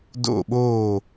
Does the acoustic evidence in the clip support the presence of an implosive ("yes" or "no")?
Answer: yes